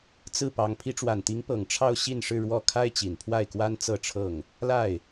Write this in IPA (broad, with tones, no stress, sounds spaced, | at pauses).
t͡s ɹ̩˥˩ p ɑ˧˥ ŋ pʰ i˧˥ ʈ͡ʂ w a˨˩ n t̪ i˧˥ ŋ p ɤ˨˩ ŋ ʈ͡ʂʰ ɑ˥˧ ʊ̯ ɕ i˥˧ n ʂ ɻ̩˥˧ ɻ w ɔ˥˩ kʰ a˥ ɪ̯ t͡ɕ i˨˩ n pʰ w a˥˩ ɪ̯ k w a˥ n t͡s ɤ˥˧ ʈ͡ʂʰ ɤ˥˩ ŋ | l a˥˩ ɪ̯